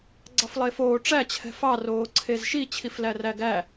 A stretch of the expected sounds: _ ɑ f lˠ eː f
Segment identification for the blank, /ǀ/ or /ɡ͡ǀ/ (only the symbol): ɡ͡ǀ